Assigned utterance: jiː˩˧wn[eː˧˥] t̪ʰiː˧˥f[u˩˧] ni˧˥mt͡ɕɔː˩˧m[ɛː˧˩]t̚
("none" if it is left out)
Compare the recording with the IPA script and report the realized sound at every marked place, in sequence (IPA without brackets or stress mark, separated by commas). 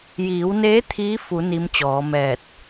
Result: eː˧˥, u˩˧, ɛː˧˩